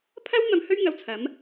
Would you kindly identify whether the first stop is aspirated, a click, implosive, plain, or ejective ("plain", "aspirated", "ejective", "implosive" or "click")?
aspirated